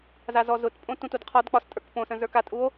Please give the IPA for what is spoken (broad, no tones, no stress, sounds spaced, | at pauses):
z a z ɔ z ʊ t pʼ õ t ũ t u d qʰ ɒ d k͡p ɒ s tʼ ə˞ k p õ s ə̃ z ə˞ k a tʼ u o̯